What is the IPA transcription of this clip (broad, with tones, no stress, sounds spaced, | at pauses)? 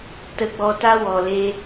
t ə˧ ɡ͡b ɔ˧ t a˦ w ɔ˨ l e˦